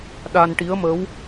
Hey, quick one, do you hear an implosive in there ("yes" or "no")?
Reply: yes